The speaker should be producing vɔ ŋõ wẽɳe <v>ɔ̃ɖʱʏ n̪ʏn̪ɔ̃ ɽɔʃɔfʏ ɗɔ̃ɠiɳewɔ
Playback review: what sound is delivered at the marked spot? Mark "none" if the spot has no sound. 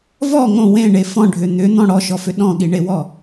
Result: f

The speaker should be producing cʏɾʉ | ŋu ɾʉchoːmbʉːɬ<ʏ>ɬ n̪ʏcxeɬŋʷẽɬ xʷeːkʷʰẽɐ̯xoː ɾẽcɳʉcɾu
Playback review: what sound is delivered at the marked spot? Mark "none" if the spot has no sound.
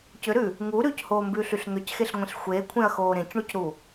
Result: y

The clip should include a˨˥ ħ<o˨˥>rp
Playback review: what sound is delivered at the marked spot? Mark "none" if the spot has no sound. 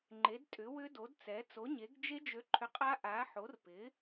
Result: o˨˥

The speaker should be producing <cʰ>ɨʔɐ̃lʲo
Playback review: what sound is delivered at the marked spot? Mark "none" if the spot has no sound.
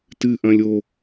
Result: t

